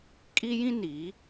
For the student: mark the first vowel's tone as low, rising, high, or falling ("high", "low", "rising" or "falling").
high